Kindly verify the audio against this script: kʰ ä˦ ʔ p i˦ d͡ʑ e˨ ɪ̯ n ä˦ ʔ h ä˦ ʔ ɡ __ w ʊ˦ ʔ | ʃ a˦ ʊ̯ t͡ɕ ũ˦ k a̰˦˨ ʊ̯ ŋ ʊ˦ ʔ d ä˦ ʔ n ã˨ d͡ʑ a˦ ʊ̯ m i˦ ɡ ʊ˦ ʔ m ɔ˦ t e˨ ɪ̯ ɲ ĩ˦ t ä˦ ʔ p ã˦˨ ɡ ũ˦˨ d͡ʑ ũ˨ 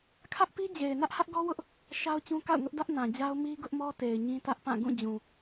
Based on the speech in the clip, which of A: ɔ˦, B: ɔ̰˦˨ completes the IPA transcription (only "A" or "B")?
A